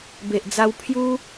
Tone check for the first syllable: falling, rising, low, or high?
low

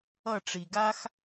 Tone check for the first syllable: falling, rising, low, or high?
falling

